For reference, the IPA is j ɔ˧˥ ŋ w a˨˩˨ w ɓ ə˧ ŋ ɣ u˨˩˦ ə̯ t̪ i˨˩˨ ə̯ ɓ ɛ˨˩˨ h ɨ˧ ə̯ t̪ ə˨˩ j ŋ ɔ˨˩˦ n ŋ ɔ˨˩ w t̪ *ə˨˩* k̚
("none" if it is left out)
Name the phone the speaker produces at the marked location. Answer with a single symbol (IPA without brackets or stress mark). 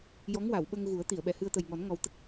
ə˦˥